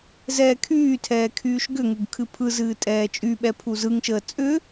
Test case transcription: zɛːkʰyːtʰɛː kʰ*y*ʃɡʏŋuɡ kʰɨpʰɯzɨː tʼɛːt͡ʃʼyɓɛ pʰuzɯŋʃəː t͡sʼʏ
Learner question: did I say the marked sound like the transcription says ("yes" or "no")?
no